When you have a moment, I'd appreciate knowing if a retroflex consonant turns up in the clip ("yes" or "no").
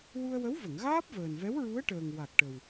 yes